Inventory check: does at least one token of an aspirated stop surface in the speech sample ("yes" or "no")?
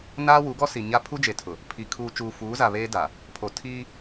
yes